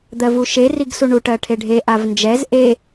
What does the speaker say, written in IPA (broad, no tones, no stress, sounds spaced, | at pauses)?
d̪ ɜ v u ʃ e r i ɡ s u ɳ u ʈ ɜ ʈʰ e ɖʱ e ʔ a v n d͡ʒ ɛ z ʔ e